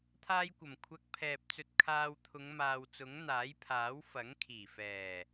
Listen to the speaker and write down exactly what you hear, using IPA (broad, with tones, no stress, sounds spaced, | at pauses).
t̪ʰ aː˥ j kʷ ɐ˨˩ m kʷʰ ɐ˧ k̚ pʰ ɛː˨ p̚ t͡s ɵ˧ t̚ kʰ aː˧ w t̪ʰ ʊ˨˧ ŋ m aː˨ w t͡s ʊ˨˥ ŋ n̪ aː˨˥ j pʰ aː˨˥ w f ɐ˨˥ ŋ kʰ iː˨˩ f ɛː˨˩